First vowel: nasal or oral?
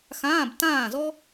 nasal